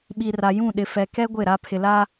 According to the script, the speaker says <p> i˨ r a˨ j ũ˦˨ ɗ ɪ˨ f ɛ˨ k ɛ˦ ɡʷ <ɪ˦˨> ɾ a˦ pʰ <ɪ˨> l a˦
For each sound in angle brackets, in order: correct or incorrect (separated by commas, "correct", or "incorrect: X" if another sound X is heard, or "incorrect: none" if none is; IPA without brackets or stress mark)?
incorrect: ɓ, correct, correct